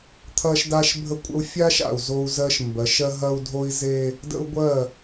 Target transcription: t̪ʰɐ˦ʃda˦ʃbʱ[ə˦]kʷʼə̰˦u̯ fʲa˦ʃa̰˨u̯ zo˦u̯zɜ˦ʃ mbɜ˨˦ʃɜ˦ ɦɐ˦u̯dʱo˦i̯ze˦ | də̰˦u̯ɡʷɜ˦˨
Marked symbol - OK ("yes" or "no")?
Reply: yes